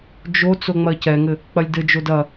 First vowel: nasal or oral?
oral